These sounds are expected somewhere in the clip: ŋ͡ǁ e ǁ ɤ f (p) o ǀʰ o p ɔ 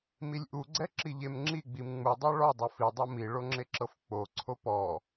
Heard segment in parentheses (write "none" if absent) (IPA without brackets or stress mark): k͡p